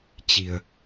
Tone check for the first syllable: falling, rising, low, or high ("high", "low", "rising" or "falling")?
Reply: low